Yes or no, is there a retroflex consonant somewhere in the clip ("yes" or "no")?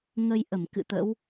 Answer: no